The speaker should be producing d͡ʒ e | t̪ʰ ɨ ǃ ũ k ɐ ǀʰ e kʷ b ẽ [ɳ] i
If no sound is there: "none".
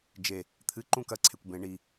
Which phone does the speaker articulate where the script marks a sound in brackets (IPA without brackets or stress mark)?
ɳ